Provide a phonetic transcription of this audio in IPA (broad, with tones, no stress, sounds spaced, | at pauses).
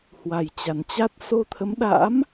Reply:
h w a˨˩ j t͡ɕ a˨˩ n t͡ɕ a˦˥ t̚ s o˧ t̪ʰ ə˨˦ m ɗ a̰˧˥ m